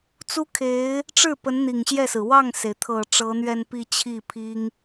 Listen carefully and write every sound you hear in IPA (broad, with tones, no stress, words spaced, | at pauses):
t͡su˥kʰe˧˥ɪ̯ | ʈ͡ʂɻ̩˥˩ pə˧˥nn̪i˨˩ŋɕjɛ˥˩sɹ̩˩ wɑ˥˩ŋse˩ɪ̯t̪ʰɤ˨˩ ʈ͡ʂɤ˧˥n̪ɥɛ˥˧npi˥˧ t͡ɕʰi˥˩pʰi˥ŋ